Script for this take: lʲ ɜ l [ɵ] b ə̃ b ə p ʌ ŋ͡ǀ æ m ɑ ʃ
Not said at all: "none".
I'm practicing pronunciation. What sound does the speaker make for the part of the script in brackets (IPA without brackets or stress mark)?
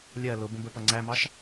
ʊ